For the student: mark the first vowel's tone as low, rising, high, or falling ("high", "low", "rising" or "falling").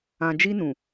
low